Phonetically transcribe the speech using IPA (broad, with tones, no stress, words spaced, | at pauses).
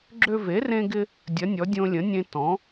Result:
ɡ͡ǁø˧ve˩˥rẽ˧ɡɪ˧ | dʲɐ˩˥nʲɔ˩˥ dʲõ˧lʲə̃˩˥nʲẽ˧ tɔ̃˩˥